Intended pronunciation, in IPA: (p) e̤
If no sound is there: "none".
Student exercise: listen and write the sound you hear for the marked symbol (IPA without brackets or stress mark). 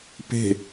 p